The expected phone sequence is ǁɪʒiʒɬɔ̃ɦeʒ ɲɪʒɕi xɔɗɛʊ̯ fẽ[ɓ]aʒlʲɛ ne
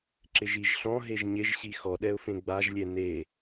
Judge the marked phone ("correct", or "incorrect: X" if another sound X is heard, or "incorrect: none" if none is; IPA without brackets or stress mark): incorrect: ɡ͡b